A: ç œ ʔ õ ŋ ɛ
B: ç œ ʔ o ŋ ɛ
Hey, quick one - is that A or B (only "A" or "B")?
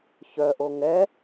B